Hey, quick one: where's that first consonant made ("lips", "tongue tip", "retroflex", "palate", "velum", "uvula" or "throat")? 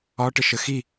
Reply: retroflex